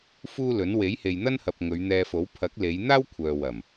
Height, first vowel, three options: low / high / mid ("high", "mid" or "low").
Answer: high